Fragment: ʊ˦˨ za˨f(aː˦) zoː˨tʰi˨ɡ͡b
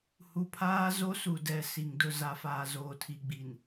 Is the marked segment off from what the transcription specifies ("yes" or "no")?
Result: yes